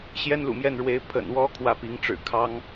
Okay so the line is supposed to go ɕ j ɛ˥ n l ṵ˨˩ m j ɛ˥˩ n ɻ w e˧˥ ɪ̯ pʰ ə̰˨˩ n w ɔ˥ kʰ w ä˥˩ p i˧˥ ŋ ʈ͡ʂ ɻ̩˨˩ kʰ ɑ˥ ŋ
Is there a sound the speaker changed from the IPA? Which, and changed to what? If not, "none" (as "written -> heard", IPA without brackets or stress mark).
none